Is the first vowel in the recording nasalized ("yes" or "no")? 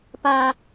no